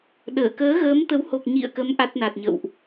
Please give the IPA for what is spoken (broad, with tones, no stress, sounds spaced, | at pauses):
ɗ əː˧˩ k əː˨˦ ɣ əː˨˦ m t̪ ə˨˦ w h o˨˩ k̚ ɲ ḭ˧˨ ə̯ k ə˨˦ m ʔ a˦˥ t̚ n a˨˩ t̚ ɲ ə̰˧˨ w ʔ